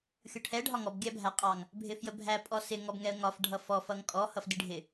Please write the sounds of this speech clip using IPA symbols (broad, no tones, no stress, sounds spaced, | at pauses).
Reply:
xʲ ʊ ʈʰ ɛ ɖʱ ɒ ŋ ɔ b ɡʲ æ bʱ æ qʼ ɑ ŋ | bʱ ɪ f j ə bʱ æ pʼ ɔ s ɪ ŋ ɔ b ŋ ɛ ə̯ ŋ ɒ f ɖʱ ʌ f ɔ f ʌ ŋ kʼ ɔ h ʌ f d i ɖʱ ɪ